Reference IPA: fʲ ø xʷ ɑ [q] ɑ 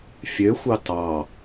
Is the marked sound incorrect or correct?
incorrect